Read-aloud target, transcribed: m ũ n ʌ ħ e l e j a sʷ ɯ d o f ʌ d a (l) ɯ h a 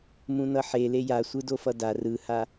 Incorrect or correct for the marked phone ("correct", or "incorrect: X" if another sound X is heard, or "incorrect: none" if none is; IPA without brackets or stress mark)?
incorrect: r